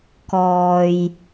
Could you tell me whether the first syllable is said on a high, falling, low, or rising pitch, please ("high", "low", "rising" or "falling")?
low